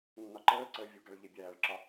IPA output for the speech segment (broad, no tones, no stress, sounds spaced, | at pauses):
nː ɒ ǃ əː ǀ əː vʲ u ɡ a ɭ ʎ e bʲ æː ɭ ǁ ɒ